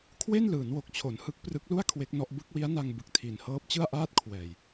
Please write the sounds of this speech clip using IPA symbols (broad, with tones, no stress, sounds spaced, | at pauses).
kʰ w e˥˩ n l ɯː˩˦ n w o˨˩ k̚ t͡ɕʰ o˩˦ n h ɯ˦˥ k̚ p r ɯ˦˥ k̚ l u˥˩ a̯ kʰ w e˦˥ k̚ n ɔ˦˥ ʔ b ɯ˦˥ k̚ w i˦˥ a̯ n a˧ ŋ b ɯ˨˩ k̚ tʰ i˩˦ n h ɤː˦˥ p̚ t͡ɕ ɯ˥˩ a̯ ʔ aː˥˩ t̚ kʰ w ɛː˨˩ j